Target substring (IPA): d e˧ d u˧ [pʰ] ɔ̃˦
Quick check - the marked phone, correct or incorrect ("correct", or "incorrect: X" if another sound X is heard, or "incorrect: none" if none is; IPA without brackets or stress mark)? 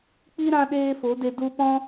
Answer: incorrect: p